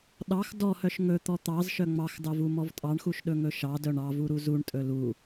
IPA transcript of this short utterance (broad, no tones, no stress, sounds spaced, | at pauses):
ɗ ɑ x d ɔ h œ ʃ ŋ ɵ t̪ ɔ t̪ ɑ z ʃ œ ŋ͡m ɑ x d ɑ v u m ɔ v tʼ ɑ ɳ x u ʃ ɗ ɵ ŋ ɵ ʃ ɑ d œ ɳ ɑ v u ɾ u z u ɳ tʼ ɵ l u